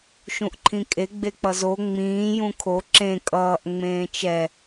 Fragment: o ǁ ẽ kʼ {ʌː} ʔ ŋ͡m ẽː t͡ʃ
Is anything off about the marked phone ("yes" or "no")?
no